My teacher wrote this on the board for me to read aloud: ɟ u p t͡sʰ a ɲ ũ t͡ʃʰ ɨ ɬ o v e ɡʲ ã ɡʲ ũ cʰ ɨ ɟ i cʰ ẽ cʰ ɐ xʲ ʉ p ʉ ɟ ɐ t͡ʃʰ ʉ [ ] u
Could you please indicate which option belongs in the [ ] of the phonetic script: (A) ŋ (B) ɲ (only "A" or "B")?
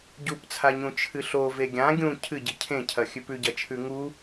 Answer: A